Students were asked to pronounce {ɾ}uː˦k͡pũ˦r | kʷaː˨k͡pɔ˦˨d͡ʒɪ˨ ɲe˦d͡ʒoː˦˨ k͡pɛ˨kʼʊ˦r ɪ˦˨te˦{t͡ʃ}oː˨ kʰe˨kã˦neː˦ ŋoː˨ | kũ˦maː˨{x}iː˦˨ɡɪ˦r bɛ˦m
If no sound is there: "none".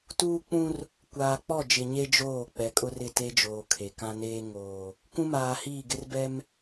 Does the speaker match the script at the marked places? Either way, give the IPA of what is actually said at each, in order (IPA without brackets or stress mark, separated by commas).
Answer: t, d͡ʒ, h